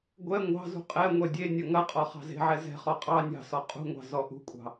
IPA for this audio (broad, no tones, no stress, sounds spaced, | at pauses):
ɡʷ ɛ ŋʷ ɑ̤ z ṳ qʼ ɛ ŋʷ ɛ dʲ e nʲ ɐ ŋ ɐ qʼ ɔ χ ɑ̤ z e̤ ʕ ɛ z ɛ̤ χ ɔ qʼ ɑ nʲ ɑ̤ s ɔ qʼ ṳ ŋʷ ɑ̤ z ɔ ʔ ṳ kʷʼ ɑ̤